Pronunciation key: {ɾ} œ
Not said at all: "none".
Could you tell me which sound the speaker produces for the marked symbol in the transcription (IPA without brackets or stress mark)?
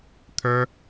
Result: t̪ʰ